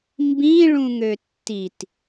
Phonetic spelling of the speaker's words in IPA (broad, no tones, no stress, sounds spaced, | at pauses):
m b ĩ ɭ ũ ŋ ø tː i t